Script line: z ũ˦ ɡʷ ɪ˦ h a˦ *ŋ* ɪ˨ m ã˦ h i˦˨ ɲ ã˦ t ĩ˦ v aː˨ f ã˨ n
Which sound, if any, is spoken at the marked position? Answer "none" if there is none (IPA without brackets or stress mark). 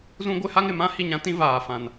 ŋ